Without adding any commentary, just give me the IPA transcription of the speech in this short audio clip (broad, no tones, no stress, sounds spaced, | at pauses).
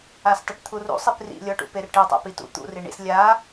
a s tˤ i ʈ t̪ʰ u r ṵ sˤ i p r ḭ lʲ ɔ ʈ ṵ p e r ʈ e tˤ a̰ p i t ṵ t̪ ṵ r i ɳ ḭ s lʲ a